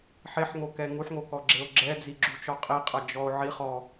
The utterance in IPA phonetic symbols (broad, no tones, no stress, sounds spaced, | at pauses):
ħ e ħ ŋ o k ɛ ŋ u ħ ŋ o k ɔ ɡ͡ǁ e o̯ ɡ͡ǁ ɛ d͡z i ɡ͡ǁ u t͡ʃ ɔ qʼ i qʼ ɐ d͡ʒ ɔ o̯ ʕ i χ ɔ